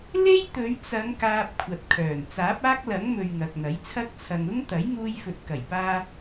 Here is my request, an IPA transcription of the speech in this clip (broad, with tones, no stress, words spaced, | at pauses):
le˥jt̪ɵ˨˧ɥt͡sɐ˨˧ŋ kaː˧p̚kʷʰɐ˨t̚kʰœː˨˩n t͡saː˨˥p̚aː˥k̚lɐ˨˥ŋmɵ˨ɥ ŋɐ˨k̚n̪ɐ˨˥jt͡sʰɐ˥k̚ t͡sʰɐ˨ŋʊ˥ŋt̪ɐ˨˥j ŋuː˧jfɵ˨t̚kɐ˨˩jpaː˧